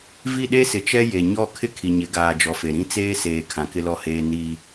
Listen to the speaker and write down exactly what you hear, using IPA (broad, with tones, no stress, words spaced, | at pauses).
vi˦˨ɗe˦sɪ˨ t͡ʃɛ˦ je˨ ɲɔ˦˨ kʰɪ˦kʰi˨ɲɪ˨˦ ɡaː˨d͡ʒɔ˨ fe˨ɾĩ˦ t͡seː˦seː˨ kʰã˨kɪ˦lɔ˦heː˦ ni˦